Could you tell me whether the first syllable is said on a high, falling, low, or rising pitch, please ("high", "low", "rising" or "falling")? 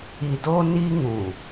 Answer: low